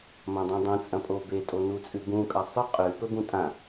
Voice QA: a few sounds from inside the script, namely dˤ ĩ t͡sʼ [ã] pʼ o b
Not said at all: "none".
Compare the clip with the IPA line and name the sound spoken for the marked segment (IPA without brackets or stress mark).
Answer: ɐ̃